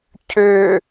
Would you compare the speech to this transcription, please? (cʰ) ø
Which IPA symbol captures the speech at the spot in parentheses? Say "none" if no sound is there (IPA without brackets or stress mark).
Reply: cʰ